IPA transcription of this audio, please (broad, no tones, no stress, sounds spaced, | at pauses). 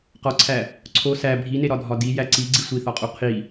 q ɒ ǀʰ æ | ǀʰ o s æ bʱ i n e ɾ ɒ dʱ ɒ d i j æ ǀ i ɡ͡ǀ i sʷ i θ ɒ qʼ u qʰ i